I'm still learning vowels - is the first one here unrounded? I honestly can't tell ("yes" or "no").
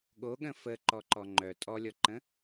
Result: no